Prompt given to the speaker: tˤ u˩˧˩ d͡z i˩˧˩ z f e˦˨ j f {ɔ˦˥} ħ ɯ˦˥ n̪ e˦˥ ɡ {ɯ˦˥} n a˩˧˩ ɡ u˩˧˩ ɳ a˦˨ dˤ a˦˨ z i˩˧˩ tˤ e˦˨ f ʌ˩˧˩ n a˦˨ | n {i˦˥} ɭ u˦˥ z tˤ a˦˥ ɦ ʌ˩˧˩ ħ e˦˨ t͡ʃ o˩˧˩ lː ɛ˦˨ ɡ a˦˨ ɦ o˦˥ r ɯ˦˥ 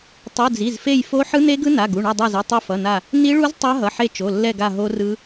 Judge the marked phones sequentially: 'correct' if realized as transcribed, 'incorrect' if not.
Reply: incorrect, correct, correct

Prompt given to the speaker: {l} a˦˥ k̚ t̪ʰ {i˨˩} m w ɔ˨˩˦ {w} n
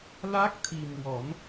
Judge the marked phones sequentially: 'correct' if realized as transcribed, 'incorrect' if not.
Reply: correct, correct, incorrect

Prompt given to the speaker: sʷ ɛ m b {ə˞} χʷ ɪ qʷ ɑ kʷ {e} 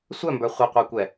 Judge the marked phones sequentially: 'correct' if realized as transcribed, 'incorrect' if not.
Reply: correct, incorrect

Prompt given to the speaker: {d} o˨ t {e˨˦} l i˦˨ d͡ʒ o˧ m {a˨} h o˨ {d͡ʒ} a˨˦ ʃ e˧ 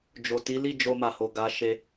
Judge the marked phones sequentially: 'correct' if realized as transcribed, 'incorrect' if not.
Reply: incorrect, incorrect, correct, incorrect

